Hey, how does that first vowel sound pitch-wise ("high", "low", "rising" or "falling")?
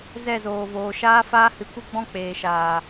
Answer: falling